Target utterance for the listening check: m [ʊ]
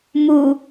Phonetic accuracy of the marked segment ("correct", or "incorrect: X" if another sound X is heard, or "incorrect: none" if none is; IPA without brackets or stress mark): incorrect: u